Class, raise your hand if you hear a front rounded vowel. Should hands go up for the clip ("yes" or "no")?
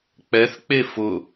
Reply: no